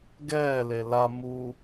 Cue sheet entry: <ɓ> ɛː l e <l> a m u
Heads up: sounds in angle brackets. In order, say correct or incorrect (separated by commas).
incorrect, correct